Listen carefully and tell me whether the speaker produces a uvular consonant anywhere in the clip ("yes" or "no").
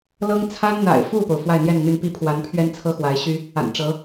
no